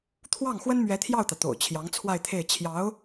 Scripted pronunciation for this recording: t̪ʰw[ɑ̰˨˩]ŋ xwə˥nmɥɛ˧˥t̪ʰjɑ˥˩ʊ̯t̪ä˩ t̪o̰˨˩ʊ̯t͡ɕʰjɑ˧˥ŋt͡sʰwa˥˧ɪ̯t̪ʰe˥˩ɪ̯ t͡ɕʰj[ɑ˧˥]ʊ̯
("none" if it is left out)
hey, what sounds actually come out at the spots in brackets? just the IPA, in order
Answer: ɑ˥˩, ɑ˧˥

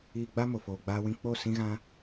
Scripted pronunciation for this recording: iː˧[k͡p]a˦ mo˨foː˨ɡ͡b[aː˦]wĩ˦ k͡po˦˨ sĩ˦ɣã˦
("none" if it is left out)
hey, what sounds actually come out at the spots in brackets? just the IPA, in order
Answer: ɡ͡b, aː˦

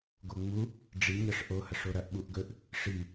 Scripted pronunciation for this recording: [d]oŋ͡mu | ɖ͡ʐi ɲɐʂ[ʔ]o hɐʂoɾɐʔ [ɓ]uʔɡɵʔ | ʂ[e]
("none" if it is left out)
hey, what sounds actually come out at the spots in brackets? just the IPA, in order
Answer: ɡ, ʔ, ɓ, i

